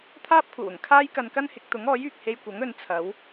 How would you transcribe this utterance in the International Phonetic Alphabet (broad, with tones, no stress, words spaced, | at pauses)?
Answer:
t̪ʰaː˥p̚kʷʰɐ˨˩wʊ˨˩ŋ kʰaː˥jkɐ˧nkɐ˥nhɪ˨˥k̚ t̪ʊ˨˥ŋɔː˨˥jyː˨k̚ he˧jkʷɐ˨˥ŋ ɵ˨˧nt͡sʰɐ˨˥w